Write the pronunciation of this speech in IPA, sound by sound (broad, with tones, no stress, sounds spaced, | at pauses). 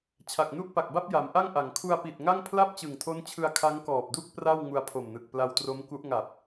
t͡ɕʰ a˨˩ k̚ n u˥˩ ʔ p a˨˩ k̚ b a˥˩ p̚ j a˩˦ m ʔ a˥˩ ŋ ʔ a˩˦ ŋ kʰ u˧ a̯ p i˨˩ t̚ ŋ a˥˩ ŋ pʰ l a˥˩ p̚ t͡ɕ ɯ˨˩ ŋ tʰ o˦˥ n t͡ɕʰ ɯ˧ a̯ kʰ a˦˥ ŋ k ɔː˨˩ p̚ d u˥˩ k̚ p r a˥˩ w ŋ u˧ a̯ pʰ o˨˩ m n ɯ˨˩ k̚ p l a˧ w t r o˦˥ m k u˦˥ ʔ ŋ a˨˩ p̚